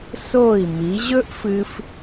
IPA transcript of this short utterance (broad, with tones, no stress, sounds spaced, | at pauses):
s o˧˩ i̯ m i˩˧ ʑ ɵ˥ ʔ f ɨ˧ f